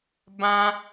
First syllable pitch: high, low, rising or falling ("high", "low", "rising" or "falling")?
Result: high